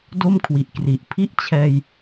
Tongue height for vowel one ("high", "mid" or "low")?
mid